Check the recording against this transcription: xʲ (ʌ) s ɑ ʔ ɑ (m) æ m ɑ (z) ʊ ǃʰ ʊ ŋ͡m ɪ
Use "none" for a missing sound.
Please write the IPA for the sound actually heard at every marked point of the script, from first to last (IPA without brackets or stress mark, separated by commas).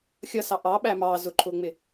ʌ, ɓ, z